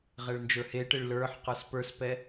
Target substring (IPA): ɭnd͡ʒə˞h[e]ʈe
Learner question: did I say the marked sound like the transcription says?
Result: yes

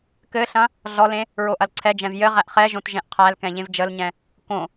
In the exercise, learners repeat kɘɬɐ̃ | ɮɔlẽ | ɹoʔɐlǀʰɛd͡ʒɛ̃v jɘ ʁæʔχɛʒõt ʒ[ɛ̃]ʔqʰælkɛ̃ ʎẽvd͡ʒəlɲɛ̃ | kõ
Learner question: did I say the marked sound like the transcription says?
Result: yes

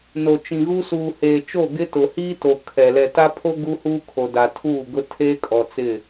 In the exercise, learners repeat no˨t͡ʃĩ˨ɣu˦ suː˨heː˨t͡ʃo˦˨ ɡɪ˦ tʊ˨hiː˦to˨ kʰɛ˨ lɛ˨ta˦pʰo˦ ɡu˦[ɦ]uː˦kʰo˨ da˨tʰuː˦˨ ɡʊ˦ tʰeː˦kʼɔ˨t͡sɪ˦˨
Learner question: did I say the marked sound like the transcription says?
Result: no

